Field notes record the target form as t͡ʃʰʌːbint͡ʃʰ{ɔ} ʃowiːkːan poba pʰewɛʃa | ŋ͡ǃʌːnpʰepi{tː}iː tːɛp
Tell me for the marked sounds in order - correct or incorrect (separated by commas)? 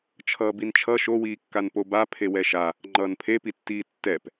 incorrect, correct